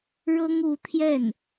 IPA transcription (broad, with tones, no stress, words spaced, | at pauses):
ɻɤ˥ŋu˧˥t̪ʰjɛ˥˩n